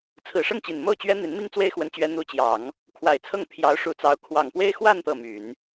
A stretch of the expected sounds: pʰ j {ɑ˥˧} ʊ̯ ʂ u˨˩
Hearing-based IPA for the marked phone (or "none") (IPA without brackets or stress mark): ɑ˧˥